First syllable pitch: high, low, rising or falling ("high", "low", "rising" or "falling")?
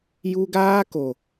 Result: high